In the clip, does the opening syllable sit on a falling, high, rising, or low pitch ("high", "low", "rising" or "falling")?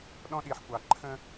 high